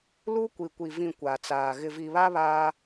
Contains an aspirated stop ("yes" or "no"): no